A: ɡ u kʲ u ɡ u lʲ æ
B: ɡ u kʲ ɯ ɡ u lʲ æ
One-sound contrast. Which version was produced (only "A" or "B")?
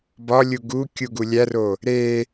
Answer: A